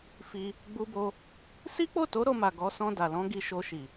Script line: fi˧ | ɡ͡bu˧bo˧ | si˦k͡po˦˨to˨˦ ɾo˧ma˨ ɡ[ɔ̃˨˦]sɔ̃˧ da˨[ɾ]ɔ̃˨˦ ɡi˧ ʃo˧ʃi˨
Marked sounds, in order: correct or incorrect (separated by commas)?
incorrect, incorrect